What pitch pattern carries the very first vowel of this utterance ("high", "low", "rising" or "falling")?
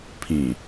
low